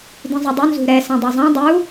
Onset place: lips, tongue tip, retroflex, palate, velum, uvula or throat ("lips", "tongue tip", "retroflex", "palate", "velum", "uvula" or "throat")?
tongue tip